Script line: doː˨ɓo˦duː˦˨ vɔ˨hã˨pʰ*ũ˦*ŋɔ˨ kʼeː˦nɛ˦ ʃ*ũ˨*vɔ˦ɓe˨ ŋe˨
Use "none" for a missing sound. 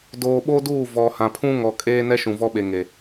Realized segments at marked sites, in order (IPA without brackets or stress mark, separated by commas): ũ˦, ũ˨